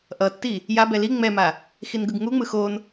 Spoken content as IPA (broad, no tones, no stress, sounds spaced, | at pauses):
ʔ ʌ tː i | j a b ɛ l i ŋ͡m ɛ m a | x i n ɡ ɯ ɡ ŋ u ŋ͡m ɯ x o n